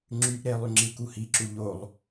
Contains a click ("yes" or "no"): yes